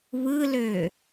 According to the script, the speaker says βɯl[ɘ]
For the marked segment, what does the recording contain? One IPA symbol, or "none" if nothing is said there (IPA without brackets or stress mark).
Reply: ø